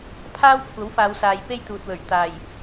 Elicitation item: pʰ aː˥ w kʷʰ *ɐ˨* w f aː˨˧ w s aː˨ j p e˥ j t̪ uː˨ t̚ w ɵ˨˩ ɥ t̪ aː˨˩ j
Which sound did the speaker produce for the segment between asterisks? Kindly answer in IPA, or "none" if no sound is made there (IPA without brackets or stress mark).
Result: ɐ˨˥